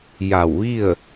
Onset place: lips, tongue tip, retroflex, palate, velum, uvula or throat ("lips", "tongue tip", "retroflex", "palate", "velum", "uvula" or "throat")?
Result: palate